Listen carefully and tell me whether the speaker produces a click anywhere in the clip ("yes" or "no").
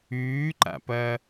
yes